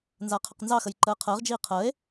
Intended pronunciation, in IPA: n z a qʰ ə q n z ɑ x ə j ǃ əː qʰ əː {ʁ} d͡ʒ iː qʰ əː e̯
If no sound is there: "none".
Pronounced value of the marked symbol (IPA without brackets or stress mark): ʁ